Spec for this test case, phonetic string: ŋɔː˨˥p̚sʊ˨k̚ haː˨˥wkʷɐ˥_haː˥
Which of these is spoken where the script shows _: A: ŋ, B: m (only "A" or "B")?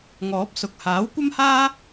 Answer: B